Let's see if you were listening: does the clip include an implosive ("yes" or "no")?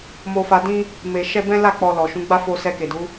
no